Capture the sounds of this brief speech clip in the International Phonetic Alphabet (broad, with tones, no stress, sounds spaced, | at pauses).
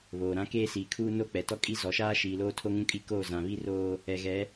β oː˨ ɾ ã˦ k eː˦ s iː˨ kʰ uː˦ n o˦ k͡p ɛ˨ t ɔ˦ kʼ i˦ z ɔ˨ ʃ aː˦ ʃ iː˨ l oː˦ tʰ o˦ ŋ ũ˦ kʼ i˦ k oː˦˨ z ã˨ β i˦ r oː˦ | ɛ˨ ɣ ɛ˨˦